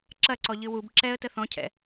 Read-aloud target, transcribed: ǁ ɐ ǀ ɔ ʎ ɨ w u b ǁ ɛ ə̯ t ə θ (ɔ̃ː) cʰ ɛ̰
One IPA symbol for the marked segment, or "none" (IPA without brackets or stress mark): ɔ̃